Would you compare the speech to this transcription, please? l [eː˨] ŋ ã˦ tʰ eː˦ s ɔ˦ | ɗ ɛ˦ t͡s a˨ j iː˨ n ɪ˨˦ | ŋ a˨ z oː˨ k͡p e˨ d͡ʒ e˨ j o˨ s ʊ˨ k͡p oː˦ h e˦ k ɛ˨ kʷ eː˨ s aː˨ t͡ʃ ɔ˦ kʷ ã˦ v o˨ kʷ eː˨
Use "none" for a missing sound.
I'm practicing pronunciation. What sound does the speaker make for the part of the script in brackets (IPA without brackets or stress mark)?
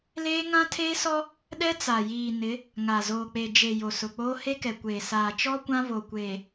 eː˦